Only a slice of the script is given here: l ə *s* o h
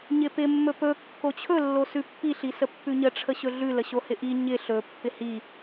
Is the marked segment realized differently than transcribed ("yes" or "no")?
yes